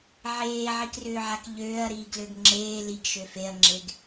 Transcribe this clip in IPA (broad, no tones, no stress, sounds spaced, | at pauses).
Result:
ʕ eː ʕ i k r ʏː ʕ a k ʎ øː ɐ̯ ɾ iː ɡ l ø ɡ ŋ͡ǁ eː l i ɡ ʃ ø f e ɐ̯ ŋ͡ǁ e ɡ